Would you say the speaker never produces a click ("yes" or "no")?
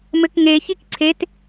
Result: no